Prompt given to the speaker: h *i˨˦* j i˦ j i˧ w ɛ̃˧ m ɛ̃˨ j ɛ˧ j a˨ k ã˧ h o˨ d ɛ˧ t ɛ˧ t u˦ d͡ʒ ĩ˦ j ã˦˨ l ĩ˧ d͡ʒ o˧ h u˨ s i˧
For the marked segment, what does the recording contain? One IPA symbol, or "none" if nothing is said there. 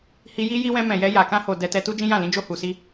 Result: i˧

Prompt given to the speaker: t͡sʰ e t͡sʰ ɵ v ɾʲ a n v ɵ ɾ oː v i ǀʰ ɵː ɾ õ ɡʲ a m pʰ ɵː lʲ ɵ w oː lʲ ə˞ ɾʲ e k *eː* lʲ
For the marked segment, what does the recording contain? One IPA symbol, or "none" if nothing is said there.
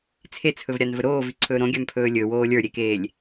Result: eː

